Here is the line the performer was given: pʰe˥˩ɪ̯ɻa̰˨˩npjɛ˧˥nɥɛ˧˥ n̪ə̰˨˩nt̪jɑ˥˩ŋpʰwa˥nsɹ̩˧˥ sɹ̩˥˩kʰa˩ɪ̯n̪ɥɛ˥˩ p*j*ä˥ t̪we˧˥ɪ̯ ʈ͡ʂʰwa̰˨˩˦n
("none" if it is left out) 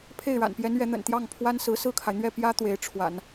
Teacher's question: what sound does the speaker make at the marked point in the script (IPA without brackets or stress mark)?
j